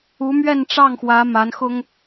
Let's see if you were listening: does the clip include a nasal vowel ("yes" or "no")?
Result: no